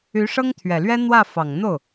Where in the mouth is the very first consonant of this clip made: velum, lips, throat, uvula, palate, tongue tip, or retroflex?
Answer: retroflex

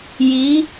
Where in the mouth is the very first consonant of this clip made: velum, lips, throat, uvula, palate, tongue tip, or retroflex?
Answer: palate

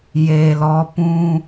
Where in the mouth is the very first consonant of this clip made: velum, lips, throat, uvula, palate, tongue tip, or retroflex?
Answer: palate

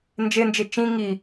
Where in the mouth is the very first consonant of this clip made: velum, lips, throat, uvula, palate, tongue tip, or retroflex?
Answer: tongue tip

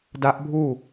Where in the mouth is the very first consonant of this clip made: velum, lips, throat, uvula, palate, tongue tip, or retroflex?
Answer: tongue tip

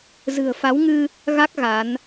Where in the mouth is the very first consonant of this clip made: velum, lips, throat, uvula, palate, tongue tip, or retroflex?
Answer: tongue tip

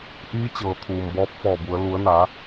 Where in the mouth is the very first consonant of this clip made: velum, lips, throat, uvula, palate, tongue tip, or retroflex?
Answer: throat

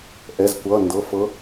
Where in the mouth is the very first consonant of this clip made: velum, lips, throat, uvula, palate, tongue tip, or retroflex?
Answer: throat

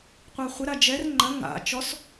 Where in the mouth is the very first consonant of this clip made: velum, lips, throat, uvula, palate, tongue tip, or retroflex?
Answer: uvula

